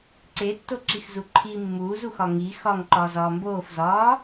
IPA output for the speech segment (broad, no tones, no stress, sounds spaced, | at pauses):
ǀ e tː o ǁ i x z u ǃʰ i mː uː z u x ɒ ŋ i x ɒ ŋ ǃ ɒː z ɒː m b oː f z ɒː